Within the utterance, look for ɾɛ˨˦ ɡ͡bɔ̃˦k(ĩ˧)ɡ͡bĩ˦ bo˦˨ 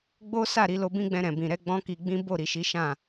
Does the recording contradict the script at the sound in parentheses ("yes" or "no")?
yes